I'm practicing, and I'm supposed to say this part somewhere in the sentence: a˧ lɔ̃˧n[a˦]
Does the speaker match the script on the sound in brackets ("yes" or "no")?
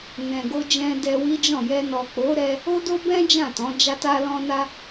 no